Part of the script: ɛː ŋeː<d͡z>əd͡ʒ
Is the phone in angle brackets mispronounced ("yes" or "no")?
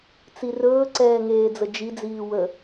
no